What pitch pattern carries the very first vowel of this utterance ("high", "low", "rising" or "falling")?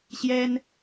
high